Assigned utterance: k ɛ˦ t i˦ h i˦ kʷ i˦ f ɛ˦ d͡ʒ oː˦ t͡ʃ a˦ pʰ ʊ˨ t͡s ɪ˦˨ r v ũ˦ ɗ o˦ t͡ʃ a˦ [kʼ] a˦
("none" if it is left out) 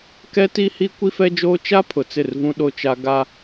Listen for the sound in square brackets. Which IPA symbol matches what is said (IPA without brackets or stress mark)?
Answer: ɡ